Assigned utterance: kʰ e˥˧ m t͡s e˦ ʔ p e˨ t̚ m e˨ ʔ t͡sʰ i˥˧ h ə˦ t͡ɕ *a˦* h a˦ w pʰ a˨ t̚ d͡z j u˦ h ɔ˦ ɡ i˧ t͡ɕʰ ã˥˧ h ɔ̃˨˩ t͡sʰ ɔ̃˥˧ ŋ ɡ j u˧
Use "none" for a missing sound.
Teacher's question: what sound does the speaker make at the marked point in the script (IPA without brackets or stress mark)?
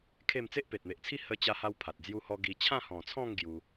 a˦